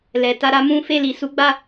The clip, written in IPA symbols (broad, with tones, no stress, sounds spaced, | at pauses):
l ɛ˨ t a˧ ɾ a˦ m ũ˦ f e˦˨ l i˨ s u˨˦ ɡ͡b a˦˨